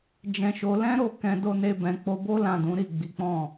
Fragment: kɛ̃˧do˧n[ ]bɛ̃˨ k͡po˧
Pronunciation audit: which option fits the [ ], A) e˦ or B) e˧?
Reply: B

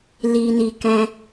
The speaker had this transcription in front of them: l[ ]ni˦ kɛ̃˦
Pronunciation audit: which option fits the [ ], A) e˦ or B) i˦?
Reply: B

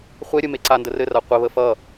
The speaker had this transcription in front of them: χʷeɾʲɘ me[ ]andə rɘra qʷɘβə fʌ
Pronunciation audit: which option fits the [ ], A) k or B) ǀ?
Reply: B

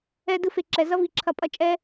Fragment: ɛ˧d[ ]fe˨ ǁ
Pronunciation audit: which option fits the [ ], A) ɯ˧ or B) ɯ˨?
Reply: A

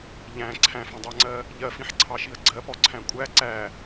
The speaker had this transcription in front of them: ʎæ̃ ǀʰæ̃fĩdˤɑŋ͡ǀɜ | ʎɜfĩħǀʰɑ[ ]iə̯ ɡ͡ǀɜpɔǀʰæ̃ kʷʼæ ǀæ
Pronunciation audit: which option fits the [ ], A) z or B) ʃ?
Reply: B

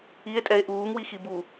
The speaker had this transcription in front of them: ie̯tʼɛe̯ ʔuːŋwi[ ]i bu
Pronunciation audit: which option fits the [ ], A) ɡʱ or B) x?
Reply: B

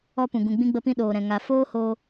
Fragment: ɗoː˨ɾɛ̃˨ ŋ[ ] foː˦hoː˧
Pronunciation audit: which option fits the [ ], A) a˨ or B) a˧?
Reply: A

